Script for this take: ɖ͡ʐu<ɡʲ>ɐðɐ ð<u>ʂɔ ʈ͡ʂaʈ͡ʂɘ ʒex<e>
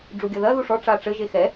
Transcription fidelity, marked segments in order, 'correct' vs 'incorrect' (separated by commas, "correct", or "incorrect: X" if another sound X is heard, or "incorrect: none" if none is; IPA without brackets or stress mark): correct, correct, incorrect: ɛ